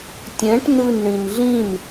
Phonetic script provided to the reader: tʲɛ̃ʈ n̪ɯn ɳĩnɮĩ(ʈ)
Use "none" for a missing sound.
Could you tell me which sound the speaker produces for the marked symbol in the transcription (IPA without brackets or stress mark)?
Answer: n